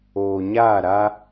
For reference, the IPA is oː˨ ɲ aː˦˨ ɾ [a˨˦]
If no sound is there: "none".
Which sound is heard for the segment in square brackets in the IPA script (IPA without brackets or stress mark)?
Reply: a˦